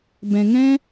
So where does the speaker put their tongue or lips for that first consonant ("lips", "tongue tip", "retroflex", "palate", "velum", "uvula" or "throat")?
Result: lips